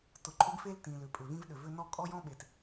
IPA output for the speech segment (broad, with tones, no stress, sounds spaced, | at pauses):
t ʊ˩ ǃʼ ʏ˥ ɡ f e˥ l t ĩ˩ l ʏ˩ pʼ ʏ˩ v ĩ˥ v ɗ ʏ˩ v ʏ˥ n ɔ˥ kʼ ɔ˥ j ɔ̃˥ ɓ e˩ t